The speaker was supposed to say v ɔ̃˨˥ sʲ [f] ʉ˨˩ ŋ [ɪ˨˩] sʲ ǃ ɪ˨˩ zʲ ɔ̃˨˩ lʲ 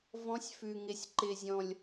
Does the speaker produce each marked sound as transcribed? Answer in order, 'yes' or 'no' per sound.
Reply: yes, yes

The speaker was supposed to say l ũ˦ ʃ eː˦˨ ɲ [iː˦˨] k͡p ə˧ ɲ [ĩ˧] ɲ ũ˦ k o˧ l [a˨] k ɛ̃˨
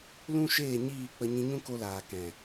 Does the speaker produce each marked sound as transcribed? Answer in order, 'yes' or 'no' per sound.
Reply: yes, yes, no

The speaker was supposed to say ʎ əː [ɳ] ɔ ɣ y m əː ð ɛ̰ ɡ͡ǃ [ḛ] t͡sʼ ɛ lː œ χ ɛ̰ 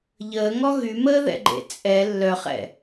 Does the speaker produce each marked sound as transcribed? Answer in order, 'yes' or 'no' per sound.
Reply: no, yes

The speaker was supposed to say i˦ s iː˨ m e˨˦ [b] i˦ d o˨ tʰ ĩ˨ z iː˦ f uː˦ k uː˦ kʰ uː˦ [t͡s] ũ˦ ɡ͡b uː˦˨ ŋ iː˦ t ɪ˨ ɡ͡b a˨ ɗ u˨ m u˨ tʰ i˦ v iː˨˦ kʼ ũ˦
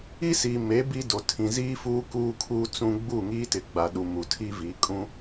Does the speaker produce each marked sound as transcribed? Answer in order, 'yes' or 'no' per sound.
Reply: yes, yes

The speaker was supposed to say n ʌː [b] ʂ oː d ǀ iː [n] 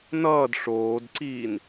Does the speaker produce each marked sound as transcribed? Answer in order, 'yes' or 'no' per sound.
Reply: no, yes

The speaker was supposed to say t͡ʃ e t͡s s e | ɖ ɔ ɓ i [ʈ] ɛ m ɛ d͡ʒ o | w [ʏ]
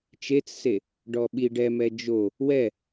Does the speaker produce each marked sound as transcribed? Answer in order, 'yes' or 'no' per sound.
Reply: no, no

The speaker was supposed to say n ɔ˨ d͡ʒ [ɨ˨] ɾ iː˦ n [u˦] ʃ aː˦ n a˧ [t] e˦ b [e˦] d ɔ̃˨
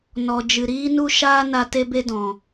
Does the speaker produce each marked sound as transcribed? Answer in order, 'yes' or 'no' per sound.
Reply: yes, yes, yes, yes

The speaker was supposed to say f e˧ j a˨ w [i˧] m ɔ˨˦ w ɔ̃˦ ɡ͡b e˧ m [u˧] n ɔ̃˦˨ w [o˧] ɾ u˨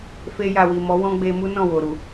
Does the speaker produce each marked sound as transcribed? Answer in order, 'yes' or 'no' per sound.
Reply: no, no, no

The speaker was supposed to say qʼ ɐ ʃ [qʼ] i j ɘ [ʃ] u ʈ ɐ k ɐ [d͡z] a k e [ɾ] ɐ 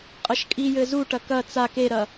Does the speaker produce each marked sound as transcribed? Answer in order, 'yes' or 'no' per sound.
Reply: no, no, no, yes

